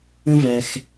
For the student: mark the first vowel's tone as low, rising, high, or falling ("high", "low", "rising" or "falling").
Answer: high